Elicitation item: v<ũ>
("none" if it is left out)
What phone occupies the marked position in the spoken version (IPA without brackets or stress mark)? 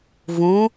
ũ